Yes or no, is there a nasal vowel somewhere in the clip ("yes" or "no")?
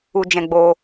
yes